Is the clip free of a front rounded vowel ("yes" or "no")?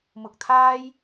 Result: yes